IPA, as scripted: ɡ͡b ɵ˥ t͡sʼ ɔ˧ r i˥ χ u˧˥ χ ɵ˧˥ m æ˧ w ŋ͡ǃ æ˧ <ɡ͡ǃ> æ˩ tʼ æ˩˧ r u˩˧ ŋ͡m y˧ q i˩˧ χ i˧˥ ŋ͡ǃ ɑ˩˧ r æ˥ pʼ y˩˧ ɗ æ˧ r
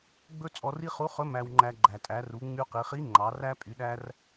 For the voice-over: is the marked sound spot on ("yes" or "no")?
yes